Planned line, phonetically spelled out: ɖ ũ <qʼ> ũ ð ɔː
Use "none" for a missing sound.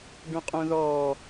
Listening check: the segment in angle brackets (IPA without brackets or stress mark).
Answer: qʼ